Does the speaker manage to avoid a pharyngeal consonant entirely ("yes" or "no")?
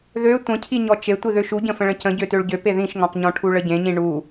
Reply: yes